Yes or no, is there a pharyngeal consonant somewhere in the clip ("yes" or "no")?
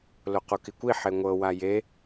yes